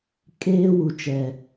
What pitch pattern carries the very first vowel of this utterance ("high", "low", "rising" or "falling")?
high